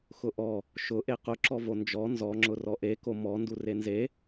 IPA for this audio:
x ʊ ʔ ɔ | ʃ ʊ ʔ e q ʊ ǁ ɔ v o n d͡ʒ ɔ n z ɔ ŋ͡ǁ ʊ r ɔ ʔ e k o m ɔ n d u r e n z e

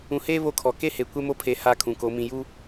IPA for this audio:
ũ˨ h eː˦ β o˦ kʰ ɔ˨ k e˦ h e˨ kʷ ɛ˦ m o˦ pʰ e˨ h a˦˨ kʰ ũ˨ k o˨˦ m ĩ˨ j u˦

